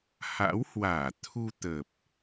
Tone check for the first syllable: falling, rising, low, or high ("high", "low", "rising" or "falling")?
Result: rising